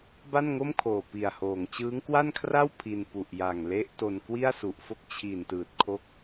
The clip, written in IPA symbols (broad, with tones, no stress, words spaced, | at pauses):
ba˥˩nŋo˥˩mkʰoː˨˩ pi˨˩a̯hoː˨˩ŋ t͡ɕɯː˦˥ŋkwa˥˩nkʰra˥˩w pʰi˧n pu˨˩ʔja˨˩ŋ le˦˥ʔto˧n kwi˥˩a̯su˨˩ʔfo˥˩k̚ t͡ɕʰi˨˩ntɯː˨˩t̚kʰo˦˥k̚